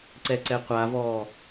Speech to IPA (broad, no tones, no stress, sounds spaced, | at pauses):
ǀ ɛ ǀ ɛ qʷ a v ɔː